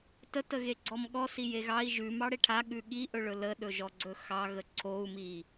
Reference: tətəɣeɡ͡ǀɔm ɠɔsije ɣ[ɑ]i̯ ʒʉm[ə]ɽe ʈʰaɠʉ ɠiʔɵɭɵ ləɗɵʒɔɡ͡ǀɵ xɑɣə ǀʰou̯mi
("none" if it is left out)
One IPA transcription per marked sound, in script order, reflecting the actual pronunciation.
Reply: ɑ, ɑ

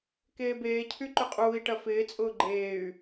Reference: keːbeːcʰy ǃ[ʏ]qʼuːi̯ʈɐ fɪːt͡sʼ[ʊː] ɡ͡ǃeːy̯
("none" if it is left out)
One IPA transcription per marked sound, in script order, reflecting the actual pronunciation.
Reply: ʏ, ʊː

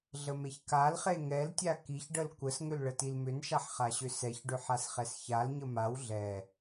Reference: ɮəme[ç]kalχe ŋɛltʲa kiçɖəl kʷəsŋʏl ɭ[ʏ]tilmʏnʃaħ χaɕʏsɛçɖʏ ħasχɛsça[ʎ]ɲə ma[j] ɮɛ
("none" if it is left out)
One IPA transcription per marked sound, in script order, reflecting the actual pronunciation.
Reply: ç, ə, l, w

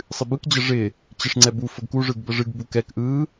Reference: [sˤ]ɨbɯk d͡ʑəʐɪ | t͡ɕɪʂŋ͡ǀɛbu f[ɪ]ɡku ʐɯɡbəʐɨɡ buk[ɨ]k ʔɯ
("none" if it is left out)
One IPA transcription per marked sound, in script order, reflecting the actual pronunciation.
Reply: sˤ, ə, ɛ

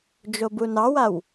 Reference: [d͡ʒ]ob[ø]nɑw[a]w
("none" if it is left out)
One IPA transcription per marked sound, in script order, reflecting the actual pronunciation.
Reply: d͡ʒ, u, a

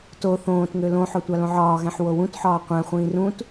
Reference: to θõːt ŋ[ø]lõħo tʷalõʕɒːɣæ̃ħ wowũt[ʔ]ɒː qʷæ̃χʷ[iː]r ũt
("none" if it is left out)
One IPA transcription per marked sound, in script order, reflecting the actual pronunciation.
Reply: ø, ħ, ĩː

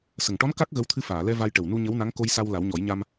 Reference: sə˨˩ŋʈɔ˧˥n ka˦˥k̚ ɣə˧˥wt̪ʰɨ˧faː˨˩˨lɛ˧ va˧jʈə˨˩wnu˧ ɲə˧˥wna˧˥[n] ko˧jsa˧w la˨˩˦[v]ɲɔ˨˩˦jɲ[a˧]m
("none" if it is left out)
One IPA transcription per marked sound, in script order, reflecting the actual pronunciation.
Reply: ŋ, w, a˧

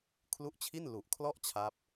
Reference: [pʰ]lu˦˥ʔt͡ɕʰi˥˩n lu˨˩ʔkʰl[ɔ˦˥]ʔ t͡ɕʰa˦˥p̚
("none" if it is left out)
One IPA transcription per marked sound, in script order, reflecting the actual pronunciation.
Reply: kʰ, ɔ˥˩

